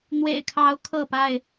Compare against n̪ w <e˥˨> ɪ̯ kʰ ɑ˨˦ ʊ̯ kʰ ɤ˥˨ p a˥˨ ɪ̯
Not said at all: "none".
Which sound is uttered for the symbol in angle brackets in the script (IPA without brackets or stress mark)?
ḛ˨˩